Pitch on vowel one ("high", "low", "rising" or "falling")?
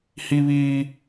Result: high